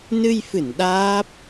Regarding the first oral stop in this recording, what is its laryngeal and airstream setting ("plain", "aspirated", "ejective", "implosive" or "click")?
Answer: implosive